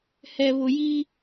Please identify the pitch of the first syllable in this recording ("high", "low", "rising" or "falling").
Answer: low